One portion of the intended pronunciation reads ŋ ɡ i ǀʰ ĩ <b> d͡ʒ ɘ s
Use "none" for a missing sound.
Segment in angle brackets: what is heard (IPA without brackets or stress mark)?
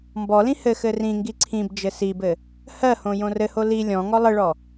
b